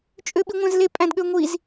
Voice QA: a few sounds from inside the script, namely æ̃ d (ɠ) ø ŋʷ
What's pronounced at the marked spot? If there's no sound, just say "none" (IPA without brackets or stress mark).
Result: ɠ